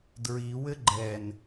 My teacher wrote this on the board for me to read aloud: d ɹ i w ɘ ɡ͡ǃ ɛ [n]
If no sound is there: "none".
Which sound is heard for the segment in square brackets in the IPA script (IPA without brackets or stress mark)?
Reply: n